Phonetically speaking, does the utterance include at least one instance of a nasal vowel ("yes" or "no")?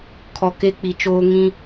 yes